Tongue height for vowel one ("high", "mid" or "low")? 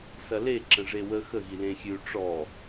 low